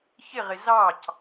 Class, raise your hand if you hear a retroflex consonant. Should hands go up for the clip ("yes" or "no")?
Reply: no